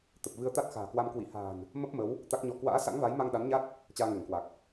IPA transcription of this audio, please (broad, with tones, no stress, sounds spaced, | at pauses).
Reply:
t̪ ə˨˩ p̚ v ɨ˧ ə̯ t̪ a˦˥ t̚ x a̤ː˨˩ k w a˧ m k w ḭ˧˨ h a̤ː˨˩ n | m ə˦˥ p̚ m ə˨˦ w | t̪ a˦˥ k̚ ɲ ɔ˧ k w a̰ː˧˥ s a̰˧˥ ŋ v a˨˦ j m a˧ ŋ ɗ a˨˦ n ɲ a˦˥ t̚ | t͡ɕ aː˧ ŋ ɛ˧˩ ŋ k w a˨˩ k̚